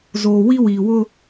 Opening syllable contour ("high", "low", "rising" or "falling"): low